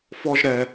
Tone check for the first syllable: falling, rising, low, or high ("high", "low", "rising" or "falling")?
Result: high